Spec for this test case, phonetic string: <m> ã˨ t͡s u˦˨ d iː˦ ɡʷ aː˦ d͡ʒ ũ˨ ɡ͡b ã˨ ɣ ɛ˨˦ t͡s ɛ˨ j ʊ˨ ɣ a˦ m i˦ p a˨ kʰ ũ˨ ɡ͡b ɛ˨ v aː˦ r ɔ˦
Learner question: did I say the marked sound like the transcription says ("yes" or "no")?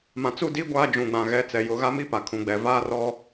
yes